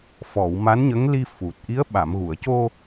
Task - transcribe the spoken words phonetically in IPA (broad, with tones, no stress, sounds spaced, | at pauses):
f ɔ˨˩˨ w m a˧˥ n ɲ ə˧˥ ŋ l i˧ f u˨˩ t̚ ʔ i˧˥ ə̯ ɓ a˨˩˨ m ɣ u˨˩˨ ə̯ c o˧